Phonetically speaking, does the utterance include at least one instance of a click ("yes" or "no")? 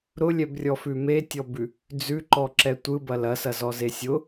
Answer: yes